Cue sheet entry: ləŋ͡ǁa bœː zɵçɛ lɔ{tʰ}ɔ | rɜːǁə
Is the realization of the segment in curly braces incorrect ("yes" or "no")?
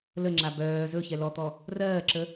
yes